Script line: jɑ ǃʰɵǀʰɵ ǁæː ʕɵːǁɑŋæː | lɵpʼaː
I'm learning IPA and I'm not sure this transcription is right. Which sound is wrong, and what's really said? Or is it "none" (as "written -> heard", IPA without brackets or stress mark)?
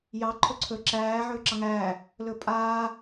none